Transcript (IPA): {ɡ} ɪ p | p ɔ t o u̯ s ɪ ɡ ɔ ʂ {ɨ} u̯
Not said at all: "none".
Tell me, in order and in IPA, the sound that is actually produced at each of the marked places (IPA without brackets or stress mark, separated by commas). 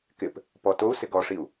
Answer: k, i